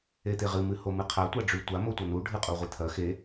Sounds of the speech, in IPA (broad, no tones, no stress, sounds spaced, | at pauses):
e t̪ e ʁ ɨ m ɨ h o m ɨ qʰ a tʷ a ɖ͡ʐ ʉ tʷ a m o tʷ ɐ n u ɖʱ ɨ qʼ u ʁʷ e t̪ʰ ɐ x e